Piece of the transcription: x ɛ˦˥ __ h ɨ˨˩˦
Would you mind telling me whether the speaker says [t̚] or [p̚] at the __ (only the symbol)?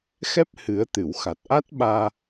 p̚